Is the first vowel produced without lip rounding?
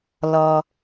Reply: no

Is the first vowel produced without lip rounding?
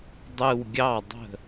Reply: yes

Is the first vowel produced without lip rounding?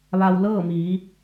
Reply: yes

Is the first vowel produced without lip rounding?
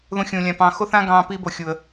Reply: no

